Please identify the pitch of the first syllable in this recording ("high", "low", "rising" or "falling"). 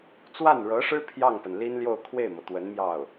falling